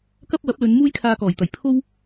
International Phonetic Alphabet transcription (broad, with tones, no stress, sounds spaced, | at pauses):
k ɐ˥ p̚ w ɐ˨˥ p̚ l ɵ˨˧ n m uː˥ j kʰ aː˧ k ɔː˨˩ j t̪ ɐ˨˩ j pʰ o˥ w